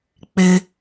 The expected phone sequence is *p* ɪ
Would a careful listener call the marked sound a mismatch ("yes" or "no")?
yes